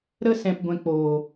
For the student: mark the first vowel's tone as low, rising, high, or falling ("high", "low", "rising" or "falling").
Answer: high